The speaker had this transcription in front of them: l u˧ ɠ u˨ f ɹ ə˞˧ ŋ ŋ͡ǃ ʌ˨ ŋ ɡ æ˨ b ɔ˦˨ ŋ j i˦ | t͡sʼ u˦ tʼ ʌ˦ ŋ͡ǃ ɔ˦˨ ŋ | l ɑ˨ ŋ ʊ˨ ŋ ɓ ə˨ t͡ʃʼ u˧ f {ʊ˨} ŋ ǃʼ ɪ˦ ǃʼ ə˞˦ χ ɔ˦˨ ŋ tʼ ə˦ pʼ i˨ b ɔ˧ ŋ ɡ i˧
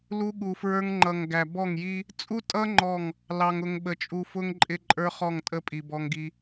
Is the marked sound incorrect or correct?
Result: incorrect: ʊ˦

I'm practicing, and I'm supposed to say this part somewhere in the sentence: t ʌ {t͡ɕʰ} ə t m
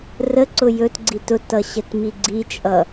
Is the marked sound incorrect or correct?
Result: incorrect: ɕ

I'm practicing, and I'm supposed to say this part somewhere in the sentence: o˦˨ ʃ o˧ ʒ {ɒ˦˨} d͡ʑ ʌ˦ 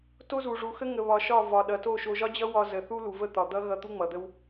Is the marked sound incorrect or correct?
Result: incorrect: ɒ˦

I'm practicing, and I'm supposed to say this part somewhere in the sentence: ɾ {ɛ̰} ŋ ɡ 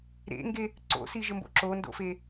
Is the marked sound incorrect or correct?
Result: incorrect: ḛ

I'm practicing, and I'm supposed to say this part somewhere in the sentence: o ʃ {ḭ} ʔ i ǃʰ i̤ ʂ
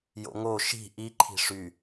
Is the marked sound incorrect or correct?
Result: incorrect: i̤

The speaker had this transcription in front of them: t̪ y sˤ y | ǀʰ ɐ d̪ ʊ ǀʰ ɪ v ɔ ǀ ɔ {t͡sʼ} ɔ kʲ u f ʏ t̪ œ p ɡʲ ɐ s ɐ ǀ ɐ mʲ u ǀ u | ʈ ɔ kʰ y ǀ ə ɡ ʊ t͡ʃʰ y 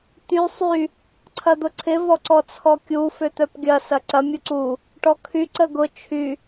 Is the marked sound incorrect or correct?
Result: incorrect: t͡sʰ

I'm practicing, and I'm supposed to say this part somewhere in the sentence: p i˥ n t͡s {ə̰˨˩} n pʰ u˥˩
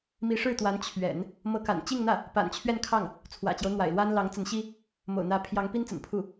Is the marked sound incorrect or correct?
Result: correct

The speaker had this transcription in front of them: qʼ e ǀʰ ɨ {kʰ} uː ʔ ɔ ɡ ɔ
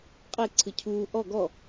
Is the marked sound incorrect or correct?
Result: incorrect: cʰ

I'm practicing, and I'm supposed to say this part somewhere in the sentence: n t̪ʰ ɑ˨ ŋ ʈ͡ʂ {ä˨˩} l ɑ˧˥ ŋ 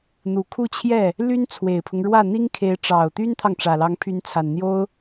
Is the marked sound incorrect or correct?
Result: correct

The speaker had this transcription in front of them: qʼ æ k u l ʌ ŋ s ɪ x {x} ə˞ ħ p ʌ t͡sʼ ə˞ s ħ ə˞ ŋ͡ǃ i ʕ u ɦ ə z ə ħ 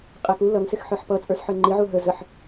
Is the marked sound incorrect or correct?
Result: incorrect: ħ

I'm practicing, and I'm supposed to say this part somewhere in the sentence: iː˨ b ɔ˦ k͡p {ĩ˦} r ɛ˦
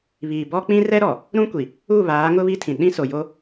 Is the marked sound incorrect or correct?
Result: correct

